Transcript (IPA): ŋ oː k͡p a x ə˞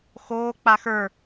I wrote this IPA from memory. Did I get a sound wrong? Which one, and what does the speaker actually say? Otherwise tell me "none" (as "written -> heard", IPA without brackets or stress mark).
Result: ŋ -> x